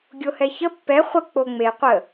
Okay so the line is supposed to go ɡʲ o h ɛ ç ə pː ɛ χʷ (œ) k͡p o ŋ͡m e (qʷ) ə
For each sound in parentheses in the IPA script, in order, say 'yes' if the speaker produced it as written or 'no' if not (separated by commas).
no, yes